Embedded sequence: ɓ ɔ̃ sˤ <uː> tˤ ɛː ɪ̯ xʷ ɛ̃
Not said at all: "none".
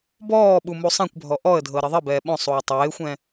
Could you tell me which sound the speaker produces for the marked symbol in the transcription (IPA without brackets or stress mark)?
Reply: uː